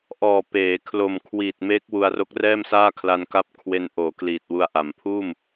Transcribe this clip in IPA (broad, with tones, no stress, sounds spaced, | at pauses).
ʔ ɔː˨˩ p eː˩˦ kʰ l o˨˩ m kʰ w i˨˩ t̚ m eː˦˥ k̚ w u˧ a̯ r o˦˥ k̚ r ɛː˥˩ m s aː˥˩ kʰ l a˧ n k a˦˥ p̚ kʰ w e˧ n ʔ oː˩˦ k l iː˨˩ t̚ w u˧ a̯ ʔ a˩˦ m pʰ uː˥˩ m